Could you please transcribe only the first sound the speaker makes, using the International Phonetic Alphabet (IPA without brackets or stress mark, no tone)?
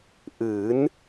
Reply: ʔ